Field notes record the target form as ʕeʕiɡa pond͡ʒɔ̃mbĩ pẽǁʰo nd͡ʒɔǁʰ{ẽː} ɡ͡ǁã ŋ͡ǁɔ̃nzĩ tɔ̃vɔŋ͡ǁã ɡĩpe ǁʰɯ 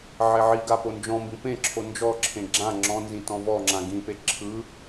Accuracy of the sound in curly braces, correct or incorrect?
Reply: incorrect: ẽ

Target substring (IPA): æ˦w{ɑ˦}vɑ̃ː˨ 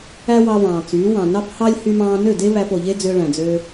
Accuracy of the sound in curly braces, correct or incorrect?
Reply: incorrect: ɑ˧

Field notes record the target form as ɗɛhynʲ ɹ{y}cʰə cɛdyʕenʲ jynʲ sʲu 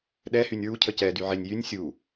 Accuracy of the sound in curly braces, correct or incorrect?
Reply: incorrect: u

